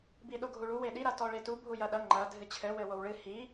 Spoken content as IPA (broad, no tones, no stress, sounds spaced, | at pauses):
b i ɗ o ɡʱ u ɭ u w e ɗ i ɾ a t ɔ ɭ e t u bʱ u j ɐ ɗ ɐ ŋ͡ǃ ɐ dʱ ɨ t͡ɕʰ ɘ w ɘ w o w ɭ ɨ h i